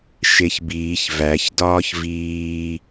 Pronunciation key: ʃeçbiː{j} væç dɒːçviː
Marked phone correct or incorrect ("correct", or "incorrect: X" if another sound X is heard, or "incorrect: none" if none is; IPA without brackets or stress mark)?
incorrect: ç